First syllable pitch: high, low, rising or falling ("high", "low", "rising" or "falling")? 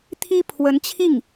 high